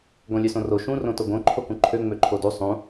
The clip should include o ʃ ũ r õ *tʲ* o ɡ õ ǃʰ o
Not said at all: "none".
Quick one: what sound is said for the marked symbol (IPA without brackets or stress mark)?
t